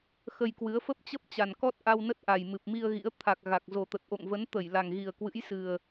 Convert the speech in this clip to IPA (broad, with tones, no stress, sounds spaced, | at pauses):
x ə˧ j k w ɨ˨˦ ə̯ f ə˦˥ p̚ t͡ɕ ə˦˥ p̚ t͡ɕ a˨˩ n k ɔ˦˥ t̚ ʔ a˧ w n ə˦˥ t̚ ʔ a˨˩ j m ɨ˨˩ p̚ m i˧ ə̯ ɣ ḭ˧˥ ə̯ t̪ʰ a˨˩ k̚ ɣ a˨˩ k̚ z o˨˩ t̪ ə˨˩ t̚ ʔ o̰˧˨ ŋ v ə˨˦ n t̪ ə˧˩ j l a˨˩ ŋ ɣ i˨˩ ə̯ k w ɨ̰˧˥ j s ɨ˨˩ ə̯